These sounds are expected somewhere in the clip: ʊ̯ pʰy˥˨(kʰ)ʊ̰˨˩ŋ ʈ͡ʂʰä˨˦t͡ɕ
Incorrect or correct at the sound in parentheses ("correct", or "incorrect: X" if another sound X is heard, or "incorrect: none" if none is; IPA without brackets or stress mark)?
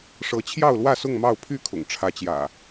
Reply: correct